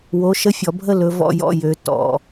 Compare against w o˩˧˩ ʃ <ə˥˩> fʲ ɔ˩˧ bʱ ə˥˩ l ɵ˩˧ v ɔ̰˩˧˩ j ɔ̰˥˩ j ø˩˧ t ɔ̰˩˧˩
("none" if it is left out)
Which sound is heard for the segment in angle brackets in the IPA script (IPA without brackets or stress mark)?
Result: ə˥˩